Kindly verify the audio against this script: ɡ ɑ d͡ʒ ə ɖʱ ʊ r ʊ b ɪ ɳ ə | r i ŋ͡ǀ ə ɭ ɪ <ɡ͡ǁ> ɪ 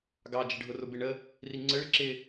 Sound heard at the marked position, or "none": ǁ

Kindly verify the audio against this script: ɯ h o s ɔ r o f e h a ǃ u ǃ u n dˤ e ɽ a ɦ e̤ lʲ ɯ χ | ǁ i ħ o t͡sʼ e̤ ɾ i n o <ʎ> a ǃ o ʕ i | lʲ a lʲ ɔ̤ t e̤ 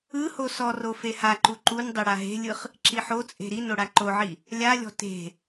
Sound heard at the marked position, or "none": ɽ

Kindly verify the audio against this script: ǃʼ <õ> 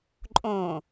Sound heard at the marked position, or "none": õ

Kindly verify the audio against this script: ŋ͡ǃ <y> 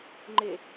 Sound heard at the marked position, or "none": e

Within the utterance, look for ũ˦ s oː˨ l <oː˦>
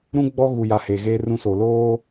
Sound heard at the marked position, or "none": oː˦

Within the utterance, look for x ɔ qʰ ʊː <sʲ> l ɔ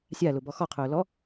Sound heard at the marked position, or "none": none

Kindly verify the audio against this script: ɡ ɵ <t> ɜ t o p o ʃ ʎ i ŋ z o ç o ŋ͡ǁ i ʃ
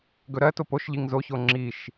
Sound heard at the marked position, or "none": ɾ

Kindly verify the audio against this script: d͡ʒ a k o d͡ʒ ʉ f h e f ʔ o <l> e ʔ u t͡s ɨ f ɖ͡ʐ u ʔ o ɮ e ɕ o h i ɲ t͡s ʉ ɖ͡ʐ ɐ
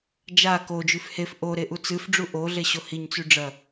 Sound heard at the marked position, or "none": ɾ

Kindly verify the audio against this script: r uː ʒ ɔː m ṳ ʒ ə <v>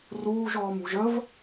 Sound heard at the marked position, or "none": v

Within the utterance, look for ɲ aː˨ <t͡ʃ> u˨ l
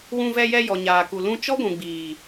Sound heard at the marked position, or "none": k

